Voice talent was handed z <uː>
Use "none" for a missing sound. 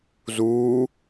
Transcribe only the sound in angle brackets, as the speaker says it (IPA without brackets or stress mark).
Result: uː